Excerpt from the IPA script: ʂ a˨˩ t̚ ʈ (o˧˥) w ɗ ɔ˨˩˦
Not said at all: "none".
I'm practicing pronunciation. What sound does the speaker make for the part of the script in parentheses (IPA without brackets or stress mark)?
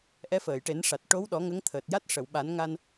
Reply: o˧˥